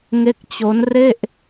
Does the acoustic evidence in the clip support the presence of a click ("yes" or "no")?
no